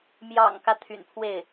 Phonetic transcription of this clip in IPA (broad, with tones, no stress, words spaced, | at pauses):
mjɑ̰˨˩ŋkä˦ t̪ʰy̰˨˩npʰwe˥˩ɪ̯